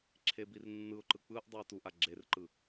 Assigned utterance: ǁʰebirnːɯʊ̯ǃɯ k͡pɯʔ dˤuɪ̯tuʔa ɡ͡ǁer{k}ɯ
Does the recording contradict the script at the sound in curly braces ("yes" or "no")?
yes